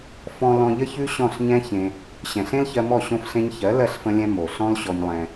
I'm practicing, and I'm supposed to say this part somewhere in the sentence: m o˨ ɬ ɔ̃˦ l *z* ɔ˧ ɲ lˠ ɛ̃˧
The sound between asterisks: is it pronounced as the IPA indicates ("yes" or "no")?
no